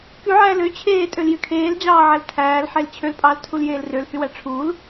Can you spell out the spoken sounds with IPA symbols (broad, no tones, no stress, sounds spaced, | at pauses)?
k y ʕ æː l ø t͡ɕʰ eː tʼ ø l j y kʰ eː l d͡ʑ ɑː ʕ æ l tʰ æː l ħ e l t͡ɕʰ ø l pʼ ɑː l tʰ u l j eː l r ø l h y w æ ʈ͡ʂʰ uː l